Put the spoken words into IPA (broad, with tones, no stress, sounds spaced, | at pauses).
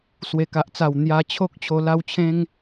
s w e˨˩ k a˨ ʔ t͡s a˨˩ w n̪ j a˧ t͡ɕʰ o˦ k̚ t͡ɕʰ o˧ l a˦ w t͡ɕʰ ẽ˦ ŋ